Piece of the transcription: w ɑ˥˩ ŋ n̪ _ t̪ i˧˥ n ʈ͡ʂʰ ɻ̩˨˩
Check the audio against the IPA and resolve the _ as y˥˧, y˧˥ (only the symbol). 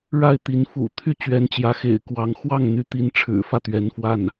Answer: y˧˥